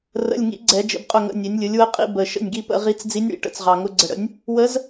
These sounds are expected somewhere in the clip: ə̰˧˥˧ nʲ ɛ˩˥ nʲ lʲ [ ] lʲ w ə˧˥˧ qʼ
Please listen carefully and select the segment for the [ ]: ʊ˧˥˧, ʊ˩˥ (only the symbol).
ʊ˩˥